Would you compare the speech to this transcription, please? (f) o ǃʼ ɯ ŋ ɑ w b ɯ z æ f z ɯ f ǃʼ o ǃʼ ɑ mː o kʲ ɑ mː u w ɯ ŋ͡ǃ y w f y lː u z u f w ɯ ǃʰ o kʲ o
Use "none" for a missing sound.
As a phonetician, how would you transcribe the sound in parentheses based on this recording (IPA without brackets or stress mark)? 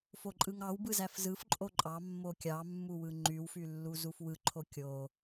f